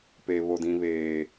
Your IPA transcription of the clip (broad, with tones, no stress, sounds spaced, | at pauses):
p e˦ β o˦ d ĩ˦ β eː˦